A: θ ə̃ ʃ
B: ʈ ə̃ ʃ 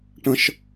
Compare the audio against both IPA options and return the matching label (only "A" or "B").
B